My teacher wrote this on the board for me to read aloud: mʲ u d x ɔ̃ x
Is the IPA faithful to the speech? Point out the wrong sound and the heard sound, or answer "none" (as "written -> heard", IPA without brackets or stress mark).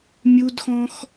none